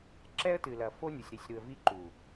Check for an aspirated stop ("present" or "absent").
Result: absent